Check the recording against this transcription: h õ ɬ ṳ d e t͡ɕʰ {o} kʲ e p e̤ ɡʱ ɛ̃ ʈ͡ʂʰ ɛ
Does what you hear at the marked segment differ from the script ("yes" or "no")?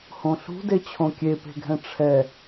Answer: yes